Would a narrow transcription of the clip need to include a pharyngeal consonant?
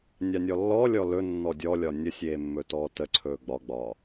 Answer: no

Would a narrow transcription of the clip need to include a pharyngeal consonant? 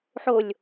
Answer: yes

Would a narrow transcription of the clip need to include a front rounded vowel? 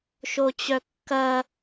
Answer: yes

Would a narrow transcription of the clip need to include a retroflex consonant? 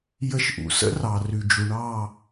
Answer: yes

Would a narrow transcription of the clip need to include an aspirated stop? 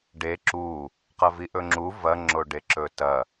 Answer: no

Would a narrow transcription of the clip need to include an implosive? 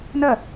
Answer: no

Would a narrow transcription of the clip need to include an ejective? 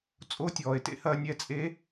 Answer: yes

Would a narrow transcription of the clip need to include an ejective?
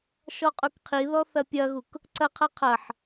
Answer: yes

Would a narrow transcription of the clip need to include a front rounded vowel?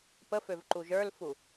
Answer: yes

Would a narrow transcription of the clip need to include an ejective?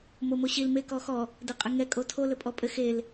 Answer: yes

